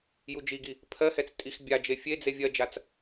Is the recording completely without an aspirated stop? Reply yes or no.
no